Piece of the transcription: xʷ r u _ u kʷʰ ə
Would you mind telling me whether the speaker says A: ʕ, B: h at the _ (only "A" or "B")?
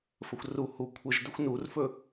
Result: B